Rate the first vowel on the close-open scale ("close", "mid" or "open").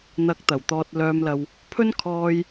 open